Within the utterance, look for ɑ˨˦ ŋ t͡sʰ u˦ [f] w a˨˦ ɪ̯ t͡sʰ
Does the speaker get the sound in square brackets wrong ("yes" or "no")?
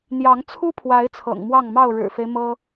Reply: yes